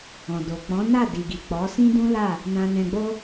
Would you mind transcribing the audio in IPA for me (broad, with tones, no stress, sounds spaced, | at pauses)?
ɔ̃˨ d o˨ k͡p ɔ̃˨˦ n a˦˨ d i˨ ɡ i˨ k͡p ɔ˨˦ s ĩ˦ d ũ˦ l a˦˨ | n ã˨ n ɛ̃˨ ɡ͡b o˧